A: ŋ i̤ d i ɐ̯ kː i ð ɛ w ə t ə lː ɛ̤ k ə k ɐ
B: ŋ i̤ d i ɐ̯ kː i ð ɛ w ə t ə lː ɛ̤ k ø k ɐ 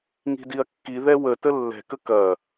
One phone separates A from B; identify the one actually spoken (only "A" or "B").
A